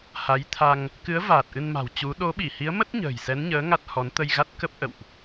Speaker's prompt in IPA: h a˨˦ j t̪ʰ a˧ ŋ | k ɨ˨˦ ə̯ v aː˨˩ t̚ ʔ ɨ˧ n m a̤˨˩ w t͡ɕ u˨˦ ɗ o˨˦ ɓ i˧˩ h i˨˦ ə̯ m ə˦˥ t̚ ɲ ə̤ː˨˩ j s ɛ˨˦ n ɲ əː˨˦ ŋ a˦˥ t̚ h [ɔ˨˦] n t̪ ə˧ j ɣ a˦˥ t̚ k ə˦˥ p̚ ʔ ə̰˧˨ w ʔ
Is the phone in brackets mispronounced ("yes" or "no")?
no